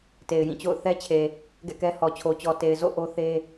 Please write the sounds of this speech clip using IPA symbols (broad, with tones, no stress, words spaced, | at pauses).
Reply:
te˨ɪ̯jĩ˦˨t͡ɕo̰˦˨ʊ̯ θɛ˦t͡ɕʰe˨ | ɡɛ̰˦˨kɛ˦hɔ˨ t͡ɕʰo˨t͡ɕɔ˨ te˨ɪ̯ zo̰˦˨ ʔo˦θe˦